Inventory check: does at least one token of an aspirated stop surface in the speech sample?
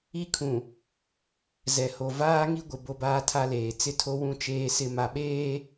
yes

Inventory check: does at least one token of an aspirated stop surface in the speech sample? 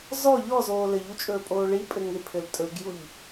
yes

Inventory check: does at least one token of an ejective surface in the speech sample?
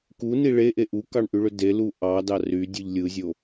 no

